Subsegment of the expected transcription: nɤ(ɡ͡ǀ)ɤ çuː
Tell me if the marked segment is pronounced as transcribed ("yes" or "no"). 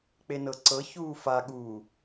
no